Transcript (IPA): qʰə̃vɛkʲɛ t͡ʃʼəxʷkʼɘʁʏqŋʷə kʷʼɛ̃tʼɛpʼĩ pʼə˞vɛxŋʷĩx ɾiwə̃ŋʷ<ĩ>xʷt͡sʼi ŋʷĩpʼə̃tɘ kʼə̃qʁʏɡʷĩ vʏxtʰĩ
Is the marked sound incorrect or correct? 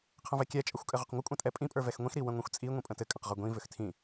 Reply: correct